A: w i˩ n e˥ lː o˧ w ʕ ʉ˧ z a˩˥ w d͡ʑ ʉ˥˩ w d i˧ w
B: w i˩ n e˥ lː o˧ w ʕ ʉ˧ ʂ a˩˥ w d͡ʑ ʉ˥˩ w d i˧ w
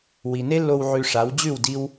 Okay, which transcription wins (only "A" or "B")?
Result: B